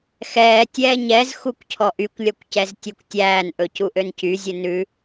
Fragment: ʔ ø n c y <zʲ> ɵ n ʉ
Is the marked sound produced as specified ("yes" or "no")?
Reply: yes